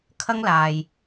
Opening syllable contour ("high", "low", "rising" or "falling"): high